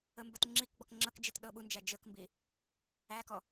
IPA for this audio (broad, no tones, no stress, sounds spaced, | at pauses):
ə m b ə t ŋ͡ǁ i k ɡ͡b ɔ k ŋ͡ǁ ɤ k d͡ʒ i t ɗ ɤ ɓ u n d͡ʒ æ d͡ʒ ə k m b i | æ k ɔ